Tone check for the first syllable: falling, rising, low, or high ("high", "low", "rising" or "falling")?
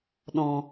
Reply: low